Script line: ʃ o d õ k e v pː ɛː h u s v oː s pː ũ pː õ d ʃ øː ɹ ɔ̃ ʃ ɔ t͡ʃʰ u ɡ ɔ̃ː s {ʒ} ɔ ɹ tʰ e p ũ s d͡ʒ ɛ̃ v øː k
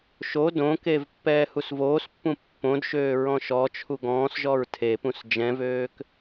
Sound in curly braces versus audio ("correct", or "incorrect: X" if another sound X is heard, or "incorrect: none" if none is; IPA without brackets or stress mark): correct